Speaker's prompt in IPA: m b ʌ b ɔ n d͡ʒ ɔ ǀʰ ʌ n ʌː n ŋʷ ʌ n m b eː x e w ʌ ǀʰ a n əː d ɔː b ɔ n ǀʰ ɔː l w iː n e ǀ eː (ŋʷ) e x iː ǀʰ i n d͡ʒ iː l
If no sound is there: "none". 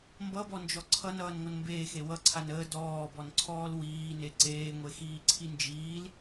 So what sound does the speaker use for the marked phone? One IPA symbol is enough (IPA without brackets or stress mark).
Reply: ŋʷ